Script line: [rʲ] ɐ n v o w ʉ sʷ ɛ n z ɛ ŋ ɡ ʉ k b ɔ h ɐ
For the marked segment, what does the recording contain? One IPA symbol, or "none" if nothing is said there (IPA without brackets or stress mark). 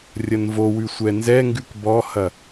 rʲ